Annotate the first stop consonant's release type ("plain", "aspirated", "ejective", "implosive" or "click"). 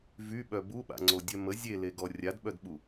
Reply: implosive